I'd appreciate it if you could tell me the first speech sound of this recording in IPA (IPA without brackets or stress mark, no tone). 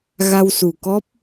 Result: ɣ